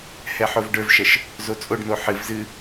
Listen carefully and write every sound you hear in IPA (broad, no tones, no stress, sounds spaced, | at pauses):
h ɛ ħ o v ɖ ə˞ v ʃ ɐ ʃ | z o t͡sʼ o ɖ n o ħ ɨ v z ɨ